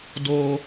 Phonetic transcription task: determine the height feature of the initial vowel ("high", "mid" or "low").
mid